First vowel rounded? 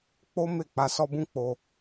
yes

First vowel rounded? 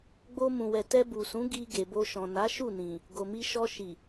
yes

